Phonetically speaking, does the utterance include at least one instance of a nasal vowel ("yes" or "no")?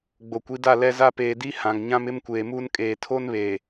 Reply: yes